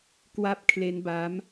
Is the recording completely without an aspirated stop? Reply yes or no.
no